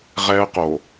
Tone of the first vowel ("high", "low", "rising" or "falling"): high